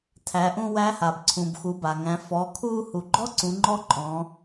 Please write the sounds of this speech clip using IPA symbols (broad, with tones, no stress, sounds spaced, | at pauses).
tʰ æ˩˧ ʔ ũ˧ w æ˧˥ h a˩ b ǀʰ ũ˩ b x u˩˧ b a˩ ŋ æ̃˩˧ f ɔ˩˧ kʰ u˧ h u˩ ɡ͡ǃ ɔ˥ ǀ ũ˩˧ ŋ͡ǃ ɔ˧˥ ǃʼ ɔ̃˩˧